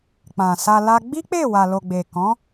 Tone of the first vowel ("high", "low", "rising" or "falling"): low